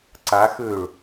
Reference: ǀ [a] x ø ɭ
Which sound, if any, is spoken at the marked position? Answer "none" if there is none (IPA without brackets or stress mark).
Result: a